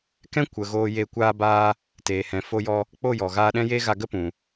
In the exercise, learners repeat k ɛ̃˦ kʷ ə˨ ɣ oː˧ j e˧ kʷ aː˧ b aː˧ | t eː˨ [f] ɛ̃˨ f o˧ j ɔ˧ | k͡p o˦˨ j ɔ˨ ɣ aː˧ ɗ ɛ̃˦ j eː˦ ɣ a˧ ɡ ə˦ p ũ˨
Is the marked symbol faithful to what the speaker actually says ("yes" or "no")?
no